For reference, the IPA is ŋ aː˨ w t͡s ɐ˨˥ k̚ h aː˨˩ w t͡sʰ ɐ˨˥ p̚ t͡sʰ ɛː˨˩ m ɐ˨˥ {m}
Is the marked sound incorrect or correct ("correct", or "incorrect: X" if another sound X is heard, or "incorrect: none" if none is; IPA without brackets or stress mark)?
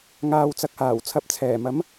correct